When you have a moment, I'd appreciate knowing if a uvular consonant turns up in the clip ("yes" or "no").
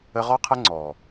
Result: yes